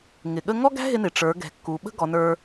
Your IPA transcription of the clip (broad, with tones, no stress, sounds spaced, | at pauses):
ŋ ɪ˩ ɠ ə˥ ŋ ɔ˥ ɡ æ̤˥ ɦ ɪ˧ n ɪ˩ ʈ͡ʂ ə˞˩˧ ɡ ɛ̤˩ kː u˩˧ ɓ ə̤˥ ɡ ɔ˩˧ n ə˞˧